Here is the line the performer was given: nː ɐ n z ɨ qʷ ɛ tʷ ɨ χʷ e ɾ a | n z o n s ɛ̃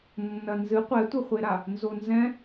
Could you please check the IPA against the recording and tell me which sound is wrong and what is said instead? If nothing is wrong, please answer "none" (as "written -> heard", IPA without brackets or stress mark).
s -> z